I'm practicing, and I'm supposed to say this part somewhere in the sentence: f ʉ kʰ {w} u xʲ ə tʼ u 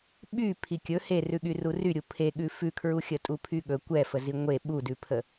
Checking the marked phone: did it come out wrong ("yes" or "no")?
yes